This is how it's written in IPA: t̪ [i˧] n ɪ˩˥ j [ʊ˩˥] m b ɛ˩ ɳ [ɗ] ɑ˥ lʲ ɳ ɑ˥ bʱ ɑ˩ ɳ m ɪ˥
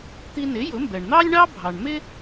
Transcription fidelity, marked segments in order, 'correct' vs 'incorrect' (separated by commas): correct, correct, incorrect